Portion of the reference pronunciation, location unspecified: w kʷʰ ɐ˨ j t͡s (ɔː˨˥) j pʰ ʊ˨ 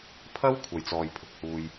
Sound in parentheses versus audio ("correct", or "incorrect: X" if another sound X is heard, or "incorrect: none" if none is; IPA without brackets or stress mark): incorrect: ɔː˨